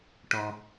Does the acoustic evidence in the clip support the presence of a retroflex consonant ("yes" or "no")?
yes